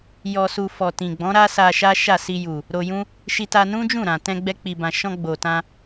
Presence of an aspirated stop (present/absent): absent